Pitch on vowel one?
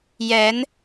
rising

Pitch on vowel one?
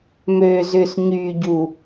low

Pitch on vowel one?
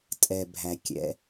low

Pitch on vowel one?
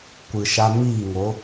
low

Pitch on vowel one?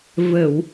low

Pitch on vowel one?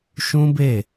high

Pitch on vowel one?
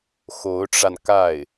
rising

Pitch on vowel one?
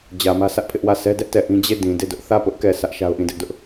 low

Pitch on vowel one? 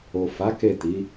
low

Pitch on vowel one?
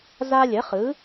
high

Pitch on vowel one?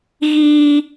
high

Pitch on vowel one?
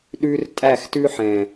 high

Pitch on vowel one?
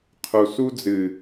low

